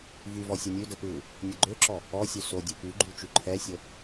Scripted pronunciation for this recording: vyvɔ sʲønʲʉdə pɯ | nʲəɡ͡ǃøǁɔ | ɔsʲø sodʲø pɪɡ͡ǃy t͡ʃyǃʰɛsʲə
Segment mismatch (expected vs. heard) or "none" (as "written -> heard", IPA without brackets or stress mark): ɪ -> y